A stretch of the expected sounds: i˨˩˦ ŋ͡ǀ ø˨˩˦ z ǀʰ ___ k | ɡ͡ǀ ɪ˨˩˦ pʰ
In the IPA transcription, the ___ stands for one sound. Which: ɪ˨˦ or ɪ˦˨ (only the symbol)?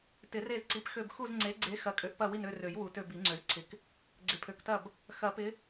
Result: ɪ˨˦